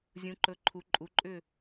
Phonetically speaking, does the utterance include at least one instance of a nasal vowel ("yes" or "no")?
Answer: yes